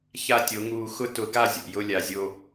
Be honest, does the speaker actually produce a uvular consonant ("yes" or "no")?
no